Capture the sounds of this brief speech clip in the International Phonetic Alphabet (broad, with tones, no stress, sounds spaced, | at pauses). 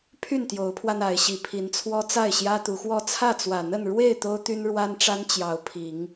pʰ y˥˨ n t̪ j o˨˦ ʊ̯ pʰ w a˧ n a˨˦ ɪ̯ ɕ i˨˩ pʰ i˨˦ n t͡sʰ w ɔ˦ t͡s a˥˨ ɪ̯ ɕ j ä˦ t̪ u˨˦ x w ɔ˥˨ t͡sʰ ä˥˨ t͡s w ä˨˩ n̪ ə˥˨ n ɻ w e˥˨ ɪ̯ t̪ o˦ ʊ̯ t̪ y˦ n ɻ w a˦ n ʈ͡ʂ a˦ n t͡ɕ j ɑ˨˦ ʊ̯ pʰ i˨˦ ŋ